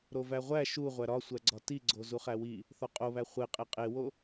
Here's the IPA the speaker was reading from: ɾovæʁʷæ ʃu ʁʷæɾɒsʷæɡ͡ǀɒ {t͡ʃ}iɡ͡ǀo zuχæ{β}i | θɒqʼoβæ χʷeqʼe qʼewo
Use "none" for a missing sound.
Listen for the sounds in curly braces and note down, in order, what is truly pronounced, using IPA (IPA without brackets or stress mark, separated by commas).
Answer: t, w